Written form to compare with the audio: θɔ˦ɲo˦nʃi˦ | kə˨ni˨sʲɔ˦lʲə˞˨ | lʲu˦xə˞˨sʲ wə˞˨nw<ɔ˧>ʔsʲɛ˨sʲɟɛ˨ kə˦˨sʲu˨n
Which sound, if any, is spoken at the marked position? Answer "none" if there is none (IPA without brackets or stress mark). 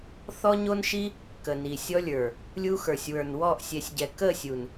ɔ˦˨